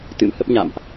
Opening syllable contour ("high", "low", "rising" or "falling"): rising